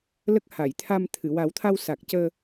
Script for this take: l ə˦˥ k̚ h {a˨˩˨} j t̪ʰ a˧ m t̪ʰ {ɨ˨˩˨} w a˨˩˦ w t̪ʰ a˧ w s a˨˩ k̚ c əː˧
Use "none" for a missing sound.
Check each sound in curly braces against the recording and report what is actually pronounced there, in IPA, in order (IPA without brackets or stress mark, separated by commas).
a˨˩˨, ɨ˨˩˨